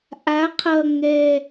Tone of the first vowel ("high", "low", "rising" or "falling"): rising